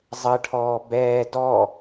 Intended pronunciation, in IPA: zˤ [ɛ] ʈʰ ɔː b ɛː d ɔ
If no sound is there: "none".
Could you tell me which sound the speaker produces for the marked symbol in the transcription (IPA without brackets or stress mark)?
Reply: ə